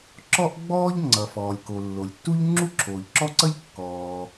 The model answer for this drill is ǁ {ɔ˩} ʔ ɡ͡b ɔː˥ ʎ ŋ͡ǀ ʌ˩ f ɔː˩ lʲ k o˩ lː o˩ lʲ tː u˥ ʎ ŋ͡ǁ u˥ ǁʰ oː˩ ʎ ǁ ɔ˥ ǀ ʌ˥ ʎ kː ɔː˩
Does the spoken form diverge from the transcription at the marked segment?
yes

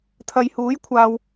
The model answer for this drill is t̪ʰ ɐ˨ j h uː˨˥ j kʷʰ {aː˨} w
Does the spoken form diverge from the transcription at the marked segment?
no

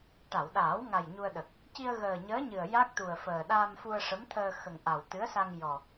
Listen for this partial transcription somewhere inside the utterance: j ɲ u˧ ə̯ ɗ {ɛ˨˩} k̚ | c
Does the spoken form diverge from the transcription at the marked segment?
yes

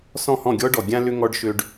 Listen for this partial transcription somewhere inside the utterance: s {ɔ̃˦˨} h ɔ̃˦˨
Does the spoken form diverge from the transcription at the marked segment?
no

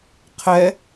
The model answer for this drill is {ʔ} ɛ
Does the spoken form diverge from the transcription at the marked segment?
yes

